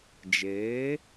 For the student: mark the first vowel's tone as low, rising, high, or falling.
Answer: rising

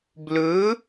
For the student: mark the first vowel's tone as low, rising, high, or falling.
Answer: rising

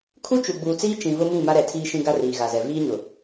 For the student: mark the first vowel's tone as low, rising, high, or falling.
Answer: high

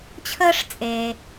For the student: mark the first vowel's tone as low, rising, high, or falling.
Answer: high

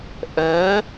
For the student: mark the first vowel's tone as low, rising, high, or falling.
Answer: rising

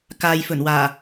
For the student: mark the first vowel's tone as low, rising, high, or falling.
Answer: low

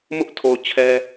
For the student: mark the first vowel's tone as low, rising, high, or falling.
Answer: high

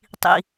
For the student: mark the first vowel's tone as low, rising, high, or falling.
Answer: low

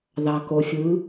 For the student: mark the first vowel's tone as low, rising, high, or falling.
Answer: low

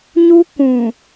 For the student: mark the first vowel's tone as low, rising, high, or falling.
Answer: high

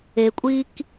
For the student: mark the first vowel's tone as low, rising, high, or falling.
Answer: low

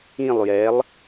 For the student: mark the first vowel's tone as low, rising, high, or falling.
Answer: falling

